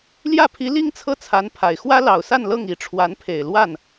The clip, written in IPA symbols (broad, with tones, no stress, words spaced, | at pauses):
ljä˥˩pʰi˧˥ li˥ŋt͡sʰɤ˥˩t͡sʰa˧˥npʰa˨˩ɪ̯ xwä˥lɑ˨˩ʊ̯sa˥˧n lɤ˥˩ŋi˧˥ʈ͡ʂʰwa˧˥npʰe˨˩ɪ̯ lwa˥˩n